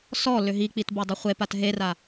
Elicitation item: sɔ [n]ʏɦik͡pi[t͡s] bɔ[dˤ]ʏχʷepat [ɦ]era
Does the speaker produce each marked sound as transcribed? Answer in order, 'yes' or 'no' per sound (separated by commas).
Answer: no, no, yes, yes